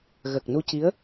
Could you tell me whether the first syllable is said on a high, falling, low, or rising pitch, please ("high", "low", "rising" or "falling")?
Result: low